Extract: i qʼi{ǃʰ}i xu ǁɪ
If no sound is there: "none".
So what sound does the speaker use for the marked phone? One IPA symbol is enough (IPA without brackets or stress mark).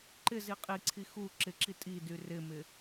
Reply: ǀʰ